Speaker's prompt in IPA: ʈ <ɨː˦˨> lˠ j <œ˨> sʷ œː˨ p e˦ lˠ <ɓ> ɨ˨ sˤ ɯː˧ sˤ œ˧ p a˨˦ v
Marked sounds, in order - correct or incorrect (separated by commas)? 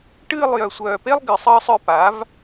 correct, correct, incorrect